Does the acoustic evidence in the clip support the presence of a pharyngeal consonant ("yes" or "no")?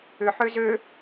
yes